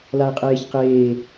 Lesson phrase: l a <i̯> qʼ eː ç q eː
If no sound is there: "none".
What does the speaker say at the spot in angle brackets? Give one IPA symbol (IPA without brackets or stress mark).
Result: i̯